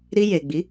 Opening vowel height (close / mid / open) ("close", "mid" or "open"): close